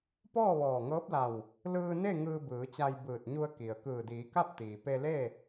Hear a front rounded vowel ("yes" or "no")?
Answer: no